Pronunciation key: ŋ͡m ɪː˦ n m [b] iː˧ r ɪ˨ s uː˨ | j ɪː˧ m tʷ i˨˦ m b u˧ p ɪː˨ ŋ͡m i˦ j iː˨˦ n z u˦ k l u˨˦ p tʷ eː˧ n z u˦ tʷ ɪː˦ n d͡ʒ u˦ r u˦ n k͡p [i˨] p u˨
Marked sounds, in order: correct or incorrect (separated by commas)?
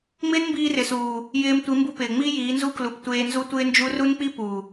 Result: correct, incorrect